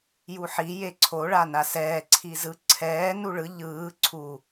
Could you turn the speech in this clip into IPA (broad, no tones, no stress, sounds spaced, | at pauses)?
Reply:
j u ħ i j e ǀʰ o ɭ a n a s ɛː ǀʰ i z ɯ ǀʰ ɛː n u ɭ ɯ ʎ ɯː ǀʰ u